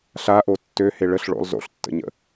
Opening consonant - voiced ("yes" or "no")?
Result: no